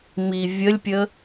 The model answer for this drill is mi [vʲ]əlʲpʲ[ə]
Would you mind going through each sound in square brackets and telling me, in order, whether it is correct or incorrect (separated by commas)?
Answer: correct, correct